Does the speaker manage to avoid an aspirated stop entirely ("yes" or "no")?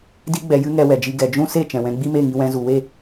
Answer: yes